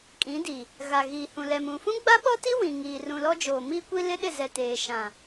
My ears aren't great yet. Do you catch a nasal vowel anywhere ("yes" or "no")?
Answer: yes